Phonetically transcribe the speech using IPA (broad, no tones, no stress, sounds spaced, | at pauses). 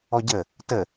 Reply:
ɔ ɟ ə | t ə